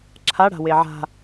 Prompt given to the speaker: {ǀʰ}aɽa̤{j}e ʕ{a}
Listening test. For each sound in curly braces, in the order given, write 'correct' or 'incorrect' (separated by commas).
incorrect, incorrect, incorrect